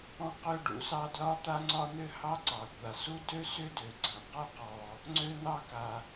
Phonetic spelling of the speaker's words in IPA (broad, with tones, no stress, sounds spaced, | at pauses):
ɔ̃˥ q ø˥ ɖ ṵ˥ s ɑ˥ d l ɒ˥ t̪ a˥ ŋ͡ǀ ɒ˥ n̪ ʏ˥ h ɑ˥ ǀ ɑ˩ kʷ a˩ s u˥ d ø˥ s ʏ˥ d ø˩ ɡ͡ǀ ã˩ q ɒ˥ q ɔ˩ | ŋ͡ǀ ø˥ n̪ ɑ˥ k a˩